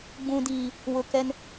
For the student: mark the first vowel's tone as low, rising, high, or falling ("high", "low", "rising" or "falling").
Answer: low